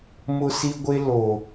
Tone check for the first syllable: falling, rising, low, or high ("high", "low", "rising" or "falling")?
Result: high